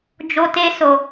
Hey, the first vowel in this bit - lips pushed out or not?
yes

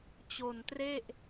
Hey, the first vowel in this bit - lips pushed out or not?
yes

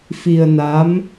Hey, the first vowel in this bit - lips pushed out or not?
no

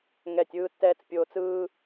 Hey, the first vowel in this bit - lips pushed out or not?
no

